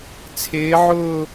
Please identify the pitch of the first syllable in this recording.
rising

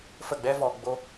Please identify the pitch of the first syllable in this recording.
falling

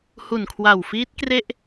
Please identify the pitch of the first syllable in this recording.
low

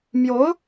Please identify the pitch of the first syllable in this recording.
rising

